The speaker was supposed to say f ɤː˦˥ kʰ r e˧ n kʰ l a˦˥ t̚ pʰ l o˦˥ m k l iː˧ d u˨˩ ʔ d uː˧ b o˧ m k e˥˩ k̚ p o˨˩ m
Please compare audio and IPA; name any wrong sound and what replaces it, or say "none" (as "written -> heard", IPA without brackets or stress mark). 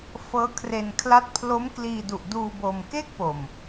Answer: none